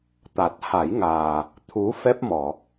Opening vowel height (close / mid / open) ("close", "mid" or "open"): open